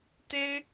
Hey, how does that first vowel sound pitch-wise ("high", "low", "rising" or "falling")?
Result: high